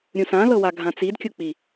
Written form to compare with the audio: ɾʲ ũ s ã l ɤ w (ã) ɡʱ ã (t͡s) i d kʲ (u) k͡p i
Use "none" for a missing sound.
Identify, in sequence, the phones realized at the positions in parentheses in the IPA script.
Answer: a, t͡s, u

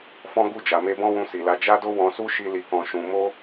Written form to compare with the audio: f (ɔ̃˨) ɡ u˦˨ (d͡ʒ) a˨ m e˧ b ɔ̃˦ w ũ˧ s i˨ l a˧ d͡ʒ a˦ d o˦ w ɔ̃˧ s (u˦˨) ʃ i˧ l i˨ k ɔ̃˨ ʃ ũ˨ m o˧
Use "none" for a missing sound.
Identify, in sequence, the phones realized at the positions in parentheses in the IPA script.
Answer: ɔ̃˦, d͡ʒ, u˦

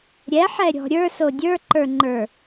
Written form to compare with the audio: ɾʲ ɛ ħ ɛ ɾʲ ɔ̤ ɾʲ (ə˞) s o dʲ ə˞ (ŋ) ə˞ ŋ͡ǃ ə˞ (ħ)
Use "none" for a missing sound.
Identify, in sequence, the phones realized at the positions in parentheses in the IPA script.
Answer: ə˞, ǃ, none

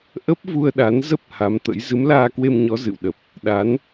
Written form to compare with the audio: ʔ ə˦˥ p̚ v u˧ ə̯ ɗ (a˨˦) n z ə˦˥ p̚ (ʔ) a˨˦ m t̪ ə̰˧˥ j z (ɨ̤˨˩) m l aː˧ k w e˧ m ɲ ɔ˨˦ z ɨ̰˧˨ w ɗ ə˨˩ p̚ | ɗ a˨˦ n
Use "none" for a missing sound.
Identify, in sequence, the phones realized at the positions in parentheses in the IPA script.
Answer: a˨˦, h, ɨ˨˦

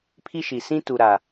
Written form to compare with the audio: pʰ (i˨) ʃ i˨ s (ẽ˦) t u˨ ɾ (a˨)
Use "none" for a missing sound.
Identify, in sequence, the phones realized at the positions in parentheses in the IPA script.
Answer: i˦, ĩ˦, a˨

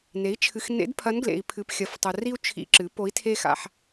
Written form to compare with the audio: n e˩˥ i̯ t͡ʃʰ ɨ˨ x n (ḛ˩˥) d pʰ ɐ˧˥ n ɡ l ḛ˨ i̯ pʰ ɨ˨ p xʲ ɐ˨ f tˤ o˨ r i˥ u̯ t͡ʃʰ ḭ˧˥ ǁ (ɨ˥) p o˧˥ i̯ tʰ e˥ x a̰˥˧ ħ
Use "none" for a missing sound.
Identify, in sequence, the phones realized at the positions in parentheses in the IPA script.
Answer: ḛ˧˥, ɨ˩˥

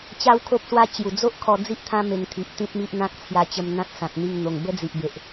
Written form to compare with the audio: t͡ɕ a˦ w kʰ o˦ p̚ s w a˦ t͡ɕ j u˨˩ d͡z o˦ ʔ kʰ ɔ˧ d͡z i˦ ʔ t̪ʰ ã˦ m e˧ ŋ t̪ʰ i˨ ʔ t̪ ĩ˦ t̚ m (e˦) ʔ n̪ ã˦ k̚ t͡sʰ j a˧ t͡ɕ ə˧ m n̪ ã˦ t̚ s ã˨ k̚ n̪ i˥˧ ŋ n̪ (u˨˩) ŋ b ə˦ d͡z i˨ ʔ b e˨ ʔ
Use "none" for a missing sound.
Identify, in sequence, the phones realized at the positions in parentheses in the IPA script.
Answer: i˦, o˨˩

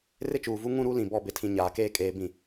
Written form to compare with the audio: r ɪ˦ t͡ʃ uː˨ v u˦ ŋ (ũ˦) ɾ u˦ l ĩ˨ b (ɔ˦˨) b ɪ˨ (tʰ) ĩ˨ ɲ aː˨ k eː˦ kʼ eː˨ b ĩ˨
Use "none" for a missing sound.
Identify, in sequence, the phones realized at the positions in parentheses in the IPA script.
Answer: ũ˦, ɔ˦˨, tʰ

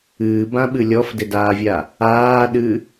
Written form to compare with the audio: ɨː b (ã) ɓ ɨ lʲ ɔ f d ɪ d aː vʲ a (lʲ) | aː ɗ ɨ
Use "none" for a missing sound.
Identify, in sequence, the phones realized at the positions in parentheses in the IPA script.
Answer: ã, none

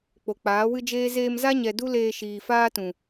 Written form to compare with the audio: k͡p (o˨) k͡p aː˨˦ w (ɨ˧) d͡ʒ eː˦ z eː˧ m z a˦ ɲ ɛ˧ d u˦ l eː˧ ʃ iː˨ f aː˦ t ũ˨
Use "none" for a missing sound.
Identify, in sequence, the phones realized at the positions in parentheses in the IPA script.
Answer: o˨, ɨ˦

